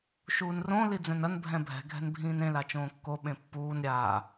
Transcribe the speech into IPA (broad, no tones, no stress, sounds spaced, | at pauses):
ʃ uː n r õ l i d͡z ɛ̃ n ɐ n bʱ ɛ̃ bʱ ɛ̤ ɡʱ ɛ̤ n bʱ ĩː n ẽ l a t͡ʃ õː kː o ɓ ẽ pː uː n ɾʲ aː